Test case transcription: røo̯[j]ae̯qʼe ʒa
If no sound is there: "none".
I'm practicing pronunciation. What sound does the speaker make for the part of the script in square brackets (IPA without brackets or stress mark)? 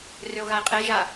ɣ